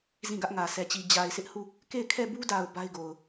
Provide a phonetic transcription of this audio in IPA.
z ĩ˦˨ ɡ ä˦ ʔ ŋ ä˨ sʰ ɛ˨ t͡ɕ i˨ d͡ʑ a˨ ɪ̯ sʰ ɪ˦ ʔ h u˦˨ | k e˦˨ ɪ̯ kʰ ɛ˦˨ b u˦ d a˨ ʊ̯ b a˦ ɪ̯ ɡ o˨ ʊ̯

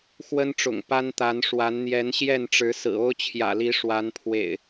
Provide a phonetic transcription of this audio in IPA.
x w ə˦ n ʈ͡ʂ ʊ̰˨˩ ŋ p a˦ n t̪ a˨˦ n ʂ w a˨˦ n n̪ j ɛ˨˦ n ɕ j ɛ˥˨ n ʈ͡ʂ ɻ̩˨˦ s ɹ̩˨˩ o˦ ʊ̯ t͡ɕʰ j ä̰˨˩ l i˨˦ ʂ w a˨˦ n pʰ w ḛ˨˩ ɪ̯

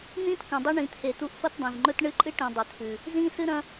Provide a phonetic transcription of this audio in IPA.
n̪ ĩː˥ t k ɐ̃˨ dˤ u˦ ɳ ĩ˨ t̪ʰ e˨ t̪ u˦ ʔ f ɐ˦ t dˤ ĩ˩ z ŋ͡ǃ ɵ˦ t ɳ ɨ˦ ǃʼ ɨ˦ ʈ ĩ˩ dˤ ɨ˩ t̪ʰ ʉ˩ | z ĩː˦ s ɨ˦ ɾ ɐ̃˦

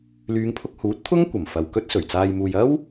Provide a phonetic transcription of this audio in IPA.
l yː˨˧ ŋ pʰ ʊ˧ k̚ h uː˨˥ t̚ t̪ʰ ʊ˥ ŋ kʷ ɐ˨˩ m f ɐ˨ w k ɵ˥ t̚ s ɵ˨˩ ɥ t͡s aː˧ j m uː˧ j ɐ˥ w

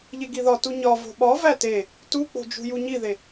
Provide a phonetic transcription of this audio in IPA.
ʎ e ɡ i ð ɒ t u ɲ ɒ v o̤ ɓ ɒ v æ t e | t u k͡p o̤ d͡ʒ ṳ j u ɲ i ð e

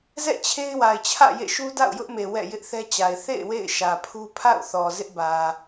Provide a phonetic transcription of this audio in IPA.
z ɛ̰˦˨ t͡ɕʰ e˦ ɪ̯ w a˨ ɪ̯ t͡ɕʰ ä̰˦˨ j ḛ˦˨ ʃ u˦ d a̰˦˨ ʊ̯ j ʊ˦ ʔ m e˨ w ɛ̰˦˨ j ɪ˦ ʔ θ ɛ˦ t͡ɕ a˨ ɪ̯ θ ḛ˦˨ ɪ̯ w ḛ˦˨ ɪ̯ ʃ ä˨ pʰ u˦ pʰ a̰˦˨ ʊ̯ θ ɔ˨ z ɪ˦ ʔ b ä˨

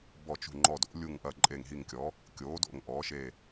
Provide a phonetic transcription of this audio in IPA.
b ɔ˧˩ t͡ʃ ṳ˧˩ ŋ͡ǃ ɔ˧˩ d o̰˩˥ lʲ u˧˩ ŋ ʔ ɐ˧˩ ǃʼ e˧˩ ŋ ɦ i˧˩ ŋ kʲ ɔ˩˥ | kʲ oː˩˥ d o̰˧˩ ŋ ʔ ɔː˩˥ ʃ e˧˩

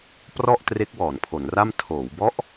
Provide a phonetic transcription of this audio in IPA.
p r ɔ˥˩ ʔ t r e˦˥ k̚ w ɔː˩˦ n pʰ o˩˦ n r a˥˩ m tʰ oː˩˦ w b ɔ˦˥ ʔ

